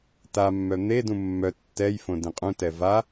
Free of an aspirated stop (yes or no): yes